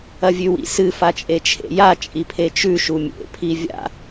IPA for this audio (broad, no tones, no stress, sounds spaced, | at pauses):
ɐ vʲ ʉ w ḭ s ɨ f a t͡ʃʼ e t͡ʃʰ ḛ j a t͡ʃʼ i pʰ e t͡ʃ ʉ ʃ u mʲ ḛ pʰ i vʲ a̰